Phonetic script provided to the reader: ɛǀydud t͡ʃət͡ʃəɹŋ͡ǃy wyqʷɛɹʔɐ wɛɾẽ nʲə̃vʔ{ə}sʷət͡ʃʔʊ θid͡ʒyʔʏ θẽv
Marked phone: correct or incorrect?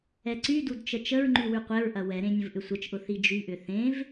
incorrect